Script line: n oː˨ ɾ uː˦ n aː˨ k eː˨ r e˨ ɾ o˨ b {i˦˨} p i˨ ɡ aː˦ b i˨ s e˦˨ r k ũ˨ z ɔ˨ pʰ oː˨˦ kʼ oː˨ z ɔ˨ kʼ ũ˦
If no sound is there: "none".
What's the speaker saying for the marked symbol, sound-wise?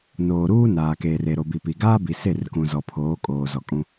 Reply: i˨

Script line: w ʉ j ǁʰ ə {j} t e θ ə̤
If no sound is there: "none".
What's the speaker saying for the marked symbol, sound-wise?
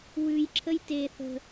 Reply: j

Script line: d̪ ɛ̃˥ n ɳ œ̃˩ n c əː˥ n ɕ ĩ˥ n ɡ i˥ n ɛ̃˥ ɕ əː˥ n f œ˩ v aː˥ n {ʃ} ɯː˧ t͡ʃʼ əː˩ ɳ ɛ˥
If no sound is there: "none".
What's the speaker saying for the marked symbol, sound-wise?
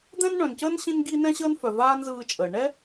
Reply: z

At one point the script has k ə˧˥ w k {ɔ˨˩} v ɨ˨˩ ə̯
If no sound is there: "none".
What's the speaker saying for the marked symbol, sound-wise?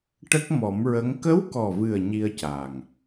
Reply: ɔ˨˩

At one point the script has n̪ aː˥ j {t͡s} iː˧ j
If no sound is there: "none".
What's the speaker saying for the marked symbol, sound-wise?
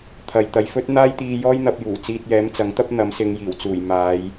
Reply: t̪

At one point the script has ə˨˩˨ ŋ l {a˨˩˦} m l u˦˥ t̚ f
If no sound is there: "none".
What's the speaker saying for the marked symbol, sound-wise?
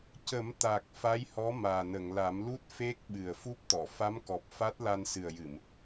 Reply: a˨˩˦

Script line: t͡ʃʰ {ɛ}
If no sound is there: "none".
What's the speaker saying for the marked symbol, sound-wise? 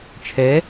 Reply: ɛ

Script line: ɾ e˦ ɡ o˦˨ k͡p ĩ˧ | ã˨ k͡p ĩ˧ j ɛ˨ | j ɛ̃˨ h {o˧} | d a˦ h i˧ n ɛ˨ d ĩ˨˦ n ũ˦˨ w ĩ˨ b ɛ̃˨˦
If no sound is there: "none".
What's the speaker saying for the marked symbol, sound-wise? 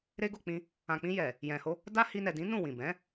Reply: o˧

